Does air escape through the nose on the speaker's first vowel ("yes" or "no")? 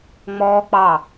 no